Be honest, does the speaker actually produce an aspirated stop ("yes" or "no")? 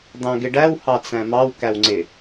no